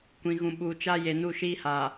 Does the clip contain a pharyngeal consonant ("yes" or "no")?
no